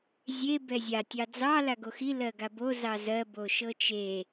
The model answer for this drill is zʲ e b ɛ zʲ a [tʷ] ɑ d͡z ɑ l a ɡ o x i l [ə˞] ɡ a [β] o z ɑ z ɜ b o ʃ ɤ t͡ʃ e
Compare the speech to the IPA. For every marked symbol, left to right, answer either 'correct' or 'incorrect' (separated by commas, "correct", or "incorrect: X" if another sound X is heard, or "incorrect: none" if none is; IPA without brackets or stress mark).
incorrect: tʲ, incorrect: ɜ, incorrect: b